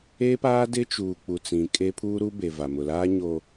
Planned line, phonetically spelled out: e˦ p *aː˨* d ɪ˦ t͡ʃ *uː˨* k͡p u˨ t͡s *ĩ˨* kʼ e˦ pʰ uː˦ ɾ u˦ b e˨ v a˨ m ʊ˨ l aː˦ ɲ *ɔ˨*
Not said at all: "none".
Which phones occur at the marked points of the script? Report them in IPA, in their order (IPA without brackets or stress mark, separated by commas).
aː˦, uː˨, ĩ˨, o˨